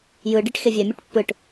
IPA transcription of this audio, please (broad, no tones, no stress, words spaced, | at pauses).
jɯɖiʈ xevʲɛmʲeʈ pːɯʈ